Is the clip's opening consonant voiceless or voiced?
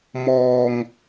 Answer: voiced